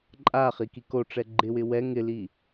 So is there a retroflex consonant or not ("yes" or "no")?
yes